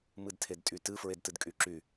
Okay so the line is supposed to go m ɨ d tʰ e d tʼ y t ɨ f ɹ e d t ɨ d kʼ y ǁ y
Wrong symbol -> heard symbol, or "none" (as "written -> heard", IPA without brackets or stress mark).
none